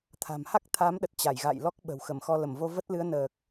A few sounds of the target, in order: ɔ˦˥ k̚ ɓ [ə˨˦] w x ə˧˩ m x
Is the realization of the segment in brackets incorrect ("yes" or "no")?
yes